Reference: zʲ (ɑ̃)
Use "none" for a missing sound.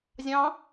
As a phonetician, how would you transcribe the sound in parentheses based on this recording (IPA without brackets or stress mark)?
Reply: ɑ̃